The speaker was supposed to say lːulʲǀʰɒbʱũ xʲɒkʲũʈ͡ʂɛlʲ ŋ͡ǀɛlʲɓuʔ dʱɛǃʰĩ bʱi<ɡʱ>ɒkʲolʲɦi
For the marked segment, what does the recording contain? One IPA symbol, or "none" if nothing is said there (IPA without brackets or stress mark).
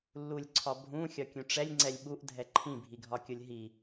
ɡʱ